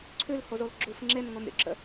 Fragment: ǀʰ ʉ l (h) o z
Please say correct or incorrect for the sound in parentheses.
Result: correct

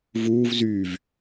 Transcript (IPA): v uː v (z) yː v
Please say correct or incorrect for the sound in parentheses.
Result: correct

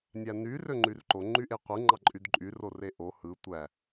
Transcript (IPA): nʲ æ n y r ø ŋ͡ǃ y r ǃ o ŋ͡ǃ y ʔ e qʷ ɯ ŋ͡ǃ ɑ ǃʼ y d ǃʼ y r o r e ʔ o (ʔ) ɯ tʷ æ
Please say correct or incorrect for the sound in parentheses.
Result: incorrect: h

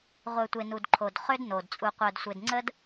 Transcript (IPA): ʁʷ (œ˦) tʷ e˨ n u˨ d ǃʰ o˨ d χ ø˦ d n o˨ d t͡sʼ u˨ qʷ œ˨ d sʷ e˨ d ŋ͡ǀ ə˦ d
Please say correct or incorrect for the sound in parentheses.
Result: incorrect: œ˨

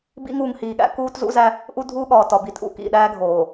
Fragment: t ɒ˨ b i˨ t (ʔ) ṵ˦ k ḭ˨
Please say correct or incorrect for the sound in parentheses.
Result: correct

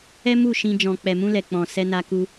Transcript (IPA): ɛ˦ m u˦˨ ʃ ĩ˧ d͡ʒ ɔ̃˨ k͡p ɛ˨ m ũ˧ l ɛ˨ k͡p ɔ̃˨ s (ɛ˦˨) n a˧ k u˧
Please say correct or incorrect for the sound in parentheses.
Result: incorrect: ɛ˧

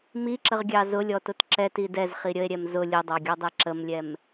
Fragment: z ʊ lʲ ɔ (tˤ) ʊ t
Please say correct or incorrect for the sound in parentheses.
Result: incorrect: t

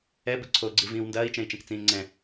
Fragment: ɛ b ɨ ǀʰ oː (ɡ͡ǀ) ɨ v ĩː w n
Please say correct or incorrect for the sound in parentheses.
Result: correct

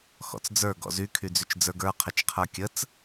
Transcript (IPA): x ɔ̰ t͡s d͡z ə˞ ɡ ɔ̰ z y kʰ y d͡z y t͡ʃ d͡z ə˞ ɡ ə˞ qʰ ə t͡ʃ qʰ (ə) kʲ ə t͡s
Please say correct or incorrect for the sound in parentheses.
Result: incorrect: ə˞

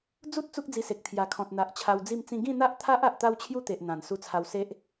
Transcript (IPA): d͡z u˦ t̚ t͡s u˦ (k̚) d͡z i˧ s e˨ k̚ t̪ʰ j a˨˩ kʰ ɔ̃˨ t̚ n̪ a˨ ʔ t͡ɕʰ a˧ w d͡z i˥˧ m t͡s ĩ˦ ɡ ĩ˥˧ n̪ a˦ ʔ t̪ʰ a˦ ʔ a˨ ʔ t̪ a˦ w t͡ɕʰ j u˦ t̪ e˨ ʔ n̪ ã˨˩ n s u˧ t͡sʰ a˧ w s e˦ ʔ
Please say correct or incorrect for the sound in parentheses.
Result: correct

